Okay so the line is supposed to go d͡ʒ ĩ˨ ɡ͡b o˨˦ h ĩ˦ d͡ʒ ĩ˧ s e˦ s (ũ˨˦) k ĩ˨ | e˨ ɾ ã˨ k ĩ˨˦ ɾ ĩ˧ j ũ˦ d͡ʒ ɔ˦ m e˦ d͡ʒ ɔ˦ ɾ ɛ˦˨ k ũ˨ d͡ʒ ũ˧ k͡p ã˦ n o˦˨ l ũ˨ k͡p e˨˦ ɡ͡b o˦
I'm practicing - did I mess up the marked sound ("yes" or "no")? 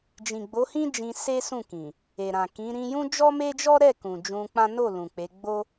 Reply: yes